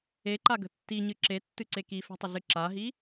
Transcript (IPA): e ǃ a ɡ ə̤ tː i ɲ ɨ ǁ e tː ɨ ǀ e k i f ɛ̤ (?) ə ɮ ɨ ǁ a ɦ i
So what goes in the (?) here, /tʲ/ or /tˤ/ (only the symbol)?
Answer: tˤ